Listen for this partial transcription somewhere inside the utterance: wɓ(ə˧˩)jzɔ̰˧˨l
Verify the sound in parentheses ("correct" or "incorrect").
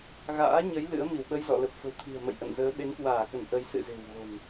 incorrect